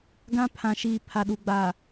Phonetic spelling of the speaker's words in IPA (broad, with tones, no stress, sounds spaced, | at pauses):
ɡ ã˦ pʰ ã˨ ʃ iː˨ pʰ a˨ ɗ u˨ ɡ͡b aː˨